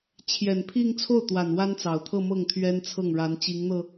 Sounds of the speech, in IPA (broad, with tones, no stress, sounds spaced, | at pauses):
t͡ɕʰ j ɛ˨˩ n pʰ i˥˧ ŋ t͡sʰ o˥˩ ʊ̯ t̪ w a˨˩ n w a˥ n t͡s ɑ˨˩ ʊ̯ t̪ʰ ɤ˥˧ m ɤ˥˩ ŋ t̪ʰ ɥ ɛ˥ n t͡sʰ ɤ˥˩ ŋ ɻ a˧˥ n t͡ɕ i˧˥ ŋ n̪ ɤ˧